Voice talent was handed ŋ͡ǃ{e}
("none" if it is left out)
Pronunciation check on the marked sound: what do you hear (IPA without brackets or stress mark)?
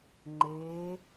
eː